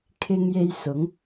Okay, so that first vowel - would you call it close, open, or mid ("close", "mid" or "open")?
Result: close